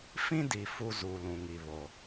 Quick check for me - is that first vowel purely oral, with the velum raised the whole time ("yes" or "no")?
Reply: no